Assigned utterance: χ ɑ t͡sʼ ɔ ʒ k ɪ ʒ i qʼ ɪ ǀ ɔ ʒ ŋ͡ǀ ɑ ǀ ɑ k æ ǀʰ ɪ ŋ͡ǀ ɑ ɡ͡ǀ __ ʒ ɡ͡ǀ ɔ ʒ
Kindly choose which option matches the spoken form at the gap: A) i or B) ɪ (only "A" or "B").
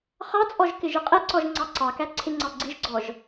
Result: A